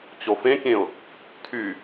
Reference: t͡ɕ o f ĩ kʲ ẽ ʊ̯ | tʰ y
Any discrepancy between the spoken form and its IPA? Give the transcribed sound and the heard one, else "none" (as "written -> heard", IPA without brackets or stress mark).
ĩ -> ẽ